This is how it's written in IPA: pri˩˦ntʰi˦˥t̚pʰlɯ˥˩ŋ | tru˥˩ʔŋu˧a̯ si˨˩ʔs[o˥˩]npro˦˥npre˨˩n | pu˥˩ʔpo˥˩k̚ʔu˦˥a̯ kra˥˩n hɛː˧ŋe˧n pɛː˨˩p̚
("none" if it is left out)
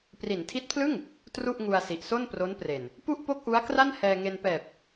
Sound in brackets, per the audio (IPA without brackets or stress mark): o˥˩